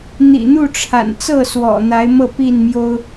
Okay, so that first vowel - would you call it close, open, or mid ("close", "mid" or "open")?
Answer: close